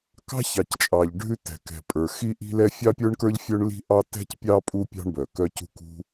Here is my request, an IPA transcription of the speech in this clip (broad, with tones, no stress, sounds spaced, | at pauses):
k ɑ̤˥ ç ɑ˩ c t͡ʃʼ ɑ˩ ʎ ɖʱ ʉ˥ t ɛ̤˩ k ɛ̤˩ pʼ ə˞˩ x i˥ ʔ i̤˥ l ɛ˥ fʲ ɑ˥ pʲ ə˞˥ ɳ k ə˞˥ ʎ fʲ œ˥ ɳ l i̤˥ ʔ ɑ˥ t ɛ̤˥ c pʲ ɑ˥ pʼ u˥ pʲ ɑ̤˥ ɳ b œ˩ k œ˥ c ṳ˥ k ṳ˥